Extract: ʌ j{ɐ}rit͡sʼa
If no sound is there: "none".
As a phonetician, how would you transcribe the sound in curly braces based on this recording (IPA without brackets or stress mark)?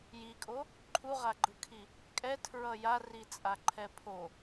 a